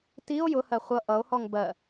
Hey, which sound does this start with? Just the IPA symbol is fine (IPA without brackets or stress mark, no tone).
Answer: t